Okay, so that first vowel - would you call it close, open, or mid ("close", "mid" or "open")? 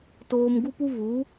mid